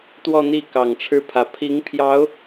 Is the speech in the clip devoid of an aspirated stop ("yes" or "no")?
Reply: no